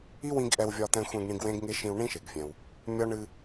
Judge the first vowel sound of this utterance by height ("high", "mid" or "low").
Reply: high